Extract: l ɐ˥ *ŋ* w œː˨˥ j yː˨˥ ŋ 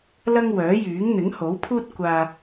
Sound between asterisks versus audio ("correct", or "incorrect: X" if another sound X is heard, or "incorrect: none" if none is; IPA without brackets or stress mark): correct